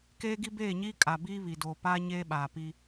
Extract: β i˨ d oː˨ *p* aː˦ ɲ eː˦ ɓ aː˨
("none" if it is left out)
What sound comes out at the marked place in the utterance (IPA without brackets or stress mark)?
p